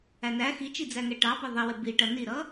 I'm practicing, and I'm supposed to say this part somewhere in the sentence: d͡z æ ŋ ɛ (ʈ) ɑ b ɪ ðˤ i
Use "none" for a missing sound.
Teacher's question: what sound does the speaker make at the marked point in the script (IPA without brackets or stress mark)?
ʈ